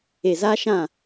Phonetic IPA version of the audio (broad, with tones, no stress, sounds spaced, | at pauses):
e˨ z aː˦ ʃ ã˦˨